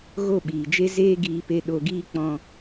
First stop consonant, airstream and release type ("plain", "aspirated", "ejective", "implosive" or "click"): implosive